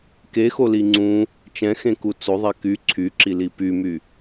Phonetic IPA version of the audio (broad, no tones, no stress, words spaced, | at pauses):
kexoli ŋ͡ǀũ | t͡ʃɛ̃xẽku t͡soðˤɛ ky ǀʰyǁili pymy